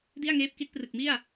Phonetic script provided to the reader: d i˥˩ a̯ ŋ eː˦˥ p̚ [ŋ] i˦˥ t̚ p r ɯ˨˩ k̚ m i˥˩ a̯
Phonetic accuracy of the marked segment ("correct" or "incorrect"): incorrect